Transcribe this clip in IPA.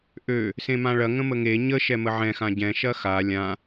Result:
ʔø | sẽmãɭɐ ŋə̃məŋe ɲə ʃɛməʕɛ̃ xãɟɛ̃ ʃɐxa lʲã

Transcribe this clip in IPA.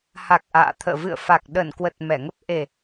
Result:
ha˨˩k̚ ʔa̰ː˧˨t̪ʰə̰ː˧˨ vɨ̰˧˨ə̯fa˨˩k̚ ɗə˧˩nkwə˨˩t̚ mɛ˧˩ŋə˦˥p̚ ʔe˨˩

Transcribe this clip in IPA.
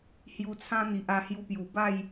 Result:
hju˧t͡sʰã˦n̪i˨ʔa˧ hju˧pju˨˩ba˥˧j

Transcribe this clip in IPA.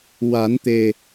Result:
wa˨˩˦nt̪e˨˩

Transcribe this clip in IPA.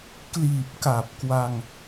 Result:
kliː˨˩p̚ka˨˩p̚kwa˧ŋ

